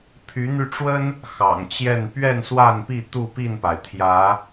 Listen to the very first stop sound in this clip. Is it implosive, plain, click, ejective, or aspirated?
aspirated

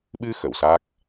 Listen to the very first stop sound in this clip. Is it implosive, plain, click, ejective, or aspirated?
implosive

